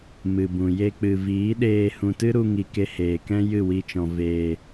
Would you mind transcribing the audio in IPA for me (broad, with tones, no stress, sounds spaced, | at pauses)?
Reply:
m ɨ˨ b ũ˨ j e˧ k͡p ɨ˨ v iː˨˦ ɗ eː˧ h ũ˨ t ɨ˦ ɾ u˧ ŋ i˨ k e˧ h eː˨ k ɛ̃˦ j ɨ˦˨ w i˧ t͡ʃ ɔ̃˨ v eː˨